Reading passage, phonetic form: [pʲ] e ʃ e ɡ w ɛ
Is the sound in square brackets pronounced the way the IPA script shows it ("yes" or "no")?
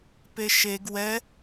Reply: no